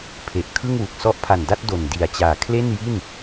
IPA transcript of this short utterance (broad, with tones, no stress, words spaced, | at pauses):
pʰe˨˩ʔkʰɯ˥˩ŋwu˨˩k̚ sɔ˦˥ʔpʰa˨˩nda˥˩t̚ do˨˩n di˨˩a̯t͡ɕaː˨˩kʰle˥˩nji˥˩n